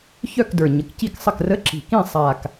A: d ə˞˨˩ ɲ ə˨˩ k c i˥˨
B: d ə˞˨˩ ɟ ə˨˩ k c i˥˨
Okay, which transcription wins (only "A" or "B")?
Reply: A